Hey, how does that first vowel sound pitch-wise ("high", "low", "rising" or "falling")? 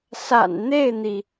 low